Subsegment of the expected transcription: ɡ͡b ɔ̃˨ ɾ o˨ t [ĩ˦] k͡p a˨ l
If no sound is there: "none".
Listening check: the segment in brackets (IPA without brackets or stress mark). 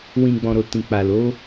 ĩ˨